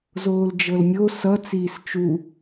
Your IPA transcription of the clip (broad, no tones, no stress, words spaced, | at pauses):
zoːld͡ʒɤlmʲo sʌ t͡siːst͡ʃu